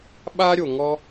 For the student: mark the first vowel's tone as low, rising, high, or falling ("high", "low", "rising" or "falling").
high